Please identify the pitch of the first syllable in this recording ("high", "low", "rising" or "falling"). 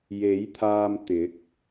rising